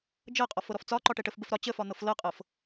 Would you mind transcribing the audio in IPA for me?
d͡ʒɤqʼɔf ɤɾɔft͡sɒǃɒ ʈɛʈəfbəf ɾɒ t͡ɕəfɒ n̪ɤflɤqʼɤf

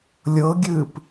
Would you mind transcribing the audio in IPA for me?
lʲɤɡʲɨːp

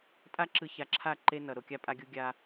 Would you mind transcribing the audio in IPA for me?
tʼa˦ǁɯ˨ ça˨ǁʰa˦˨ ǃe˦nʌ˨ ɾo˨kʲa˦pʼa˦ɡʲu˦ ɡʲa˦

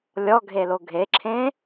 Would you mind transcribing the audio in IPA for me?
lʲɔɡʱelo ɡʱeǁʰẽ

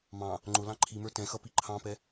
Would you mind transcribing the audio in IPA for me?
mɑ̃ | ŋ͡ǃʊ lɑ̃ǃʰimə˞ tɛ̃xʌ piǃʰɑ̃pɛ

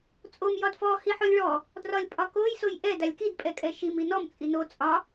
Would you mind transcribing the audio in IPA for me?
t͡sʼom jɒdfɔ hiħolʲɭɔ | drɒlʲpʼɒkoj sojʔɛ dalʲkid pʼɛkʼɛʃim inɔm t͡sʼino t͡sʼɒ

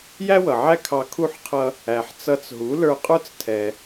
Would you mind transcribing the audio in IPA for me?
jæ˥wʌ˩ʕæ˥˩ kʰɑ˧kʰu˥˩ħqʰʌ˧ | æ˩ħt͡sʌ˧t͡sɦu˩˥ lə˞˧qʼə˞˥t͡stʰɛ˩

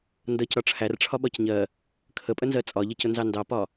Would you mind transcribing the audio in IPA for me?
ndʌc ɾɒʈ͡ʂʰær ʈ͡ʂʰɒɓɒcɲɜ | kʰəpʼənzɜ t͡sʼɒʎɜcʊ nzɑndɑpɒ

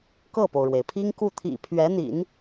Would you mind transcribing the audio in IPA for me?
kɤ˥˩po˩ʊ̯ɻwe˩ɪ̯pʰi˥ŋ ku˥˩t̪ʰḭ˨˩ pʰɥɛ˧˥n̪ḭ˨˩˦n

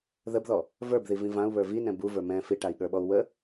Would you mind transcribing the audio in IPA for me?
ðəbðɔ | və˞bði vĩvãu̯ βə˞vinɛ̃ buvə˞ mɛ̃ fiʈai̯ɠə˞ɓɔu̯ wə

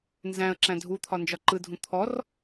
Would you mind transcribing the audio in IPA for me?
nzæ̃ə̯ǁæ̃ dʱut̪ʰɒ nd͡ʒɒǃɯdʱũ t̪ʰɔr

